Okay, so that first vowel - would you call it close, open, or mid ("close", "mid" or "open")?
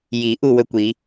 close